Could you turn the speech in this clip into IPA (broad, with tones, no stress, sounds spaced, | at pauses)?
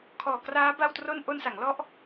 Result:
kʰ ɔː˨˩ k r aː˦˥ b a˥˩ w t r o˥˩ n ʔ o˧ n s a˩˦ ŋ l ɔ˦˥ ʔ